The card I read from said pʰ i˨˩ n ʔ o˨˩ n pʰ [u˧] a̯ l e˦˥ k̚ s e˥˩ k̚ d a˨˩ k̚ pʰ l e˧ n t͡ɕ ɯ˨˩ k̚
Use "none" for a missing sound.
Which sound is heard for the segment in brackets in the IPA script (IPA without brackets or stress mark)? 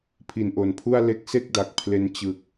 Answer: u˥˩